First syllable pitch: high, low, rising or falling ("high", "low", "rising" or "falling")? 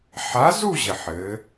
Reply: rising